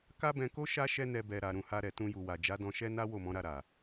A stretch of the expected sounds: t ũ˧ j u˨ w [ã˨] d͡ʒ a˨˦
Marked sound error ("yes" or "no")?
yes